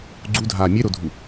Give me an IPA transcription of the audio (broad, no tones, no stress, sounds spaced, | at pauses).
ɡ͡ǀ u dʱ aː mʲ e ɾ o dʱ u